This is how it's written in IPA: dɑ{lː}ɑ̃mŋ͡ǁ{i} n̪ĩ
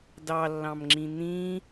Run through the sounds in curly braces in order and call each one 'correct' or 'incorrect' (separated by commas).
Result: correct, incorrect